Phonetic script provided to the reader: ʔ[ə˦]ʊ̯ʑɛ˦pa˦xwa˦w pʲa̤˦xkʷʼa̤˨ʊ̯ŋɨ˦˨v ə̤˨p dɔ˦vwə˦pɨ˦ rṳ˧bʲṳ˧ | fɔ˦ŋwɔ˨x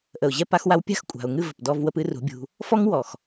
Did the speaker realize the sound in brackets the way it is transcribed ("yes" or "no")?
no